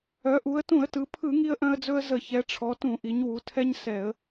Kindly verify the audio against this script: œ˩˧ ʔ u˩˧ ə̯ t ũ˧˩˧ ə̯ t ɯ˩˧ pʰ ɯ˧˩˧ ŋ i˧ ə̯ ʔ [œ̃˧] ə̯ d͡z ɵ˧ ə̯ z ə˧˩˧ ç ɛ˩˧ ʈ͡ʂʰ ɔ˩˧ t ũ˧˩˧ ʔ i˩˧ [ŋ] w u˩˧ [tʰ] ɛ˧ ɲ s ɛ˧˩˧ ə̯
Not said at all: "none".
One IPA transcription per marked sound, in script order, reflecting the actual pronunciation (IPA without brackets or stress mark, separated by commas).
œ̃˧, ɲ, tʰ